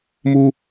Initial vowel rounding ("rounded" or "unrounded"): rounded